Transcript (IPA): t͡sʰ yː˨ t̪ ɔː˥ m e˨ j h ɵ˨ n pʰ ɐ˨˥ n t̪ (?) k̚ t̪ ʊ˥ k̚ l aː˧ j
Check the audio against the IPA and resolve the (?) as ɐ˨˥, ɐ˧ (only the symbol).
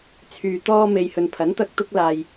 ɐ˧